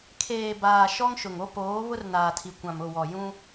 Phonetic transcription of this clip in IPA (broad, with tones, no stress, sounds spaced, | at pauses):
kʰ eː˨ b aː˨ ʃ ɔ˦ ŋ ʃ ʊ˨ ŋ o˦ p oː˨˦ β ʊ˦ r n aː˨ tʰ i˨ kʷ ã˨ m ʊ˦˨ w ɔ˨ j ũ˦